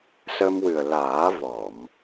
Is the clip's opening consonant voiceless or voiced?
voiceless